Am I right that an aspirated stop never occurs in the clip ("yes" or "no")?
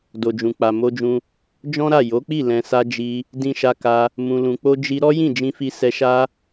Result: yes